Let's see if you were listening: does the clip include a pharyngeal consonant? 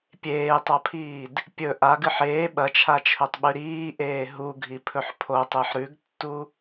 yes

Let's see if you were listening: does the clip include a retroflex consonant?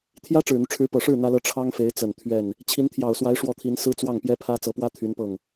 yes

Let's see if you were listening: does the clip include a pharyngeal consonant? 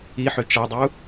yes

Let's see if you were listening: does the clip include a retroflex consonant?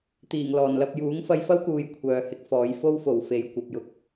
no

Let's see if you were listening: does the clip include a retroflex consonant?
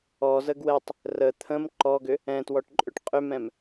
yes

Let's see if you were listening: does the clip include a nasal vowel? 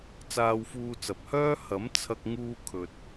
no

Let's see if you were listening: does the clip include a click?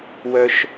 no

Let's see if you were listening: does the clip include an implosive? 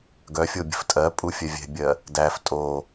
no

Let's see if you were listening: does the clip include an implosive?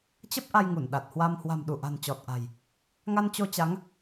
yes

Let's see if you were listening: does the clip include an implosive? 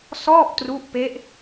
no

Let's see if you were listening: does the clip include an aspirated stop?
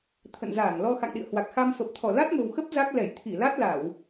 yes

